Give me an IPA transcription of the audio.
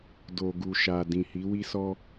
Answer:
d o˨ ɡ u˨ ʃ a˨ d ĩ˨ h i˨˦ w i˧ s ɔ˧

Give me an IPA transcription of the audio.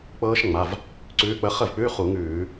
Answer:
k͡p ɤː˦˥ ʃ ŋ͡m a˩˧˩ v | ǀ ʉː˨˦ k͡p ə˨˦ χ ə˥˩ v k͡p ʉ˧˥˧ χ u˧˩˧ ŋ ʉː˧˩˧

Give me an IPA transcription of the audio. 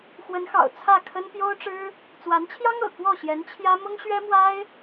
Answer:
x w ə˧˥ n x ɑ̰˨˩ ʊ̯ t͡sʰ ä˥˩ kʰ ə˥ n p j o˥ ʊ̯ ʈ͡ʂ ɻ̩˥ | t͡s w a˧˥ n t͡ɕʰ j ɑ˥ ŋ ɤ̰˨˩ k w ɔ˥˩ ɕ j ɛ˧˥ n t͡ɕʰ j ä˥ m ʊ˥ ŋ ɕ ɥ ɛ˥ m w a˥ ɪ̯

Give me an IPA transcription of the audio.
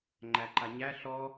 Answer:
ŋ͡ǃ æ ǃ a ɲ æ ɬ ɔ

